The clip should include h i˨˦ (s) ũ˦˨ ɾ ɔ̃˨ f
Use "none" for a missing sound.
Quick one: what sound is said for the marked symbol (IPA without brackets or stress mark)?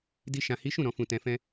ʃ